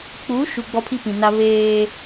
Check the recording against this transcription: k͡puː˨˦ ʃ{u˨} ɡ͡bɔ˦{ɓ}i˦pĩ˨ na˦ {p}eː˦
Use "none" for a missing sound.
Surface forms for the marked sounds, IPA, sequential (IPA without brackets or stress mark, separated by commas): u˨, pʰ, β